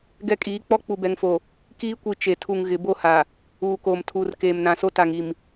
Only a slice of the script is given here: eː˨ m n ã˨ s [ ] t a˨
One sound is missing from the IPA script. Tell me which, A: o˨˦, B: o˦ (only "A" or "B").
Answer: B